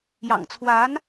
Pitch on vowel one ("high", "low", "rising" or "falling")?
low